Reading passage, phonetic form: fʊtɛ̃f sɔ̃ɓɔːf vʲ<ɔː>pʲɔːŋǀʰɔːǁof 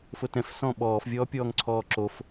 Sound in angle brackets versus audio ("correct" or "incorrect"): correct